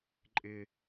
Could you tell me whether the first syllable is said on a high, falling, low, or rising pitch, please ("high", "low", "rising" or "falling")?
low